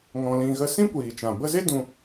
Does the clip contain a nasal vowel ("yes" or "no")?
yes